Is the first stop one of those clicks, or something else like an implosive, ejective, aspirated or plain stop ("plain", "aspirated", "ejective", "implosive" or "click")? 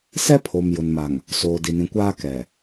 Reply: aspirated